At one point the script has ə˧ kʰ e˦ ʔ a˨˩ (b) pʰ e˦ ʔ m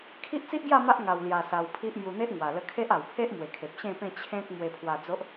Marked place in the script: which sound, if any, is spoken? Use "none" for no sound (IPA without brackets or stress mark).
w